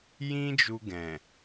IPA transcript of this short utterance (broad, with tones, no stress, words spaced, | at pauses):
jĩ˦d͡ʒu˧ɡɛ̃˨